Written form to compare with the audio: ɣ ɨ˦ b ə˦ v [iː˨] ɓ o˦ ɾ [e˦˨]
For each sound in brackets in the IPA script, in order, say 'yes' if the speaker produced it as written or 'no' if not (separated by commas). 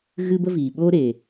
yes, no